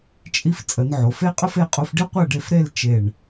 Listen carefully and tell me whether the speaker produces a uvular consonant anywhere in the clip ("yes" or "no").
yes